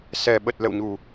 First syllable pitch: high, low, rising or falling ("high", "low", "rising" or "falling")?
low